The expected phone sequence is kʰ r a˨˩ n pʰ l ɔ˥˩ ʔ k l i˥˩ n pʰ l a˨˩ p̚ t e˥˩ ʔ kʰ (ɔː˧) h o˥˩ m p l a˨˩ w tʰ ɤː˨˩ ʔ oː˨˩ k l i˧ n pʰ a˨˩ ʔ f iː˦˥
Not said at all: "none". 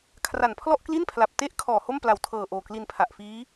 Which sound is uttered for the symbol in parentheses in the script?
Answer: ɔː˨˩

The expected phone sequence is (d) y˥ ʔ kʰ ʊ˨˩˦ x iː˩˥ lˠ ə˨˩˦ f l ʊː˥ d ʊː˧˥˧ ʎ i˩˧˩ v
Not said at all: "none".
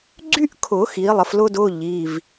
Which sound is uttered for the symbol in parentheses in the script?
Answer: ɡ͡ǀ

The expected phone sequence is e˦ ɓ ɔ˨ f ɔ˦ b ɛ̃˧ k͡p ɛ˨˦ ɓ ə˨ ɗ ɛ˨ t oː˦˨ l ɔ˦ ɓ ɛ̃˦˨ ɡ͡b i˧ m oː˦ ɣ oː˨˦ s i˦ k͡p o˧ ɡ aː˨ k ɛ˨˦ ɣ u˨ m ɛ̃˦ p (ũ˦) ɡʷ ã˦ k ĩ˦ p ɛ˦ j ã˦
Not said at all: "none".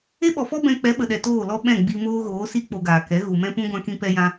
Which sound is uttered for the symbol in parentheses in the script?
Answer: ũ˦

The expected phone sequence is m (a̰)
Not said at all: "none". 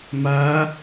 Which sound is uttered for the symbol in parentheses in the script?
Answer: a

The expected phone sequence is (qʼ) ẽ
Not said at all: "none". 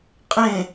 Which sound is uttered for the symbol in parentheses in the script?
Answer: qʼ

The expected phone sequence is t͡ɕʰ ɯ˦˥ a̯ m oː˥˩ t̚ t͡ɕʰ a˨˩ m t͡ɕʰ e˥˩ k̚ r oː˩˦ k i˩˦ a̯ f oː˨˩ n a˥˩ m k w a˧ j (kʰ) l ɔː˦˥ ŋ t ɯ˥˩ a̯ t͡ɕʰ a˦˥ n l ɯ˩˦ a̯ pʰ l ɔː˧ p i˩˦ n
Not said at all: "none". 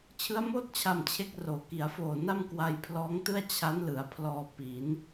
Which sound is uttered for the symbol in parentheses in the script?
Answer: pʰ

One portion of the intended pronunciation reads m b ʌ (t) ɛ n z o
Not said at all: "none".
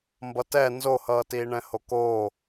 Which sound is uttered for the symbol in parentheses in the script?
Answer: t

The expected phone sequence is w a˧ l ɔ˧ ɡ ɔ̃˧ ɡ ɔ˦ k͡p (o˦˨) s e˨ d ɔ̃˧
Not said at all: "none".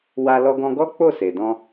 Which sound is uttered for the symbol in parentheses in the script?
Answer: o˦˨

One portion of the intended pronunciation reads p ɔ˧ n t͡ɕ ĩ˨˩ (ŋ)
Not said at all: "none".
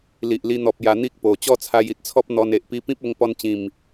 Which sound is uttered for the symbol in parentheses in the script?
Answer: m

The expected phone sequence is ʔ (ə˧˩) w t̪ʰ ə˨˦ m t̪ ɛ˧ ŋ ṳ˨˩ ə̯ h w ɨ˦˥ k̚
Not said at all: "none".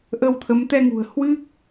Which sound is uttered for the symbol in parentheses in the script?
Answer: ə˧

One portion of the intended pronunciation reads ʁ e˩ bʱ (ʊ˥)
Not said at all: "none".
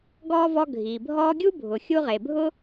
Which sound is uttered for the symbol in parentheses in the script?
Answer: ʊ˥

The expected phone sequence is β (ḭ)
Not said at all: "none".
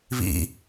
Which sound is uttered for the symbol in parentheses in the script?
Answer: ḭ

